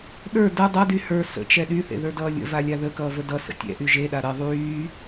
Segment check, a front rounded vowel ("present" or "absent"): present